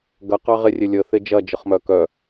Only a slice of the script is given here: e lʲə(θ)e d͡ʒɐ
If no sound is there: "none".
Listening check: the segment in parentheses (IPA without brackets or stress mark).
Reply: θ